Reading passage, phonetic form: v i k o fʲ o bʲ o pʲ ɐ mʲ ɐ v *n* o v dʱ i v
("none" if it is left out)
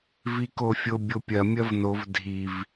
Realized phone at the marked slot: n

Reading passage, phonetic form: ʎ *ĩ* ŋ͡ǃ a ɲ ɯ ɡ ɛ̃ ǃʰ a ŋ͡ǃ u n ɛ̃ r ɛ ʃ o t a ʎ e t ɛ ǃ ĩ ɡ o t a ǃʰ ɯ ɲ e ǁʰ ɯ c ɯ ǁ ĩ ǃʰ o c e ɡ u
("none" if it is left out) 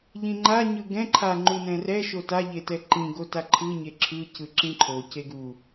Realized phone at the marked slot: ĩ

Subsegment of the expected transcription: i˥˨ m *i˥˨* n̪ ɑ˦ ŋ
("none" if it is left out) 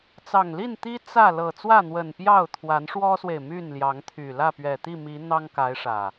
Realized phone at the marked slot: i˨˦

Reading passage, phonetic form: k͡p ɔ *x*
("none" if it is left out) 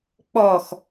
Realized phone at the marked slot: x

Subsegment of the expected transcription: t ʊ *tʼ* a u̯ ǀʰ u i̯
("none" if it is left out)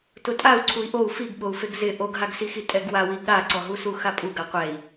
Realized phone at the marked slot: tʼ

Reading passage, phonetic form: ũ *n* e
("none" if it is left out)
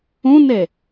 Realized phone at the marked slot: n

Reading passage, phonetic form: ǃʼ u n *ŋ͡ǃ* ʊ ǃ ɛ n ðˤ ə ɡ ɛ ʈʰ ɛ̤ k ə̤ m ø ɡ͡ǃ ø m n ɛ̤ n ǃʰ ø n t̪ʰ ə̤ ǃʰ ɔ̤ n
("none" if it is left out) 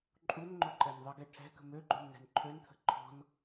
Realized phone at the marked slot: ŋ͡ǃ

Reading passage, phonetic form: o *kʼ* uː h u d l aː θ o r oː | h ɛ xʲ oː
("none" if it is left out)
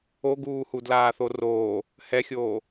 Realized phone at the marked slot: ɡ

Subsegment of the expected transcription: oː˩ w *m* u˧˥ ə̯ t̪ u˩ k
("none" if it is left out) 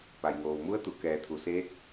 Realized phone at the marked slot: m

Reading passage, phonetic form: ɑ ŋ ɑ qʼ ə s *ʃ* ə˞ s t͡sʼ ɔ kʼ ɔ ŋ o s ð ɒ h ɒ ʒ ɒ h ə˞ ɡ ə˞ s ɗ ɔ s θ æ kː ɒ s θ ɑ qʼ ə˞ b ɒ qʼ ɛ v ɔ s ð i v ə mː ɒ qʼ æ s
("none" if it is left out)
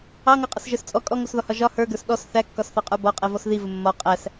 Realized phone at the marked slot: ʒ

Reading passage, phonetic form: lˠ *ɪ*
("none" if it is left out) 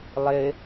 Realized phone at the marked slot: ɪ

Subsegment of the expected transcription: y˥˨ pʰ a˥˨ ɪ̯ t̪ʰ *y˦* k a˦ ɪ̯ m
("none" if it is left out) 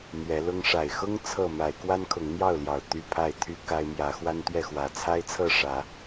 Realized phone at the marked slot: y˦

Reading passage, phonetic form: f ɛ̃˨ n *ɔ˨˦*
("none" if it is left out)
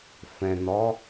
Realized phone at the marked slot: ɔ˨˦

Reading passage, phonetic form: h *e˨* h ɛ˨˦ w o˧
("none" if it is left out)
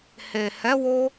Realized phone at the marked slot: e˨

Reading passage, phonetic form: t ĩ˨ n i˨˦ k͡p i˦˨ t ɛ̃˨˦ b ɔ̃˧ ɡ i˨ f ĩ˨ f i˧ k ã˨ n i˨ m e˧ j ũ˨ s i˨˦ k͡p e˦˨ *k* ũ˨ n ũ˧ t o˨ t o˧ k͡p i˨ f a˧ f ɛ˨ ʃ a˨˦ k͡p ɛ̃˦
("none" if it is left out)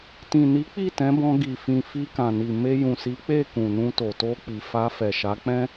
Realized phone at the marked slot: k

